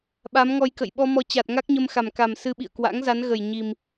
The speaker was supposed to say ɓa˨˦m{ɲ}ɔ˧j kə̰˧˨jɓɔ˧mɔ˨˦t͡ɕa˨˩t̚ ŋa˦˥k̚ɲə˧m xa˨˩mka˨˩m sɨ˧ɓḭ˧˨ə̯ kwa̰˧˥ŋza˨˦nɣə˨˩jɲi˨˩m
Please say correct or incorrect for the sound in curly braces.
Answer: incorrect